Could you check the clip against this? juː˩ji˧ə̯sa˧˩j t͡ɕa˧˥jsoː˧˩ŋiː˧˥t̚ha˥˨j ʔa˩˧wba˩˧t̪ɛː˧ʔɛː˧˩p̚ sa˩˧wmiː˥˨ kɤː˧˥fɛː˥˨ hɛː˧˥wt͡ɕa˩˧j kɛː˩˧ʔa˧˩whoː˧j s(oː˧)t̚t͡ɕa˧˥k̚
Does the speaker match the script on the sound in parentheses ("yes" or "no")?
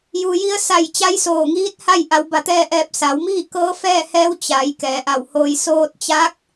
yes